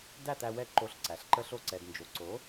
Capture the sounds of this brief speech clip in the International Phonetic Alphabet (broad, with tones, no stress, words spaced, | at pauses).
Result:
dæ˥˩t̪æ˧ wɛ˧ǃo˩˥ɬ ǀæ˩ɬǃə˧ɬo˧ ǀɛ˩dnd͡ʒo˩ǀo˩˥